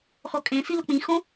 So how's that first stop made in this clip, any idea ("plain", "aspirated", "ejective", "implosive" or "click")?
ejective